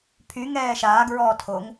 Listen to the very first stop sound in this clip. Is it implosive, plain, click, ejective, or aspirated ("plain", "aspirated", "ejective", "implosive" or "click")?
aspirated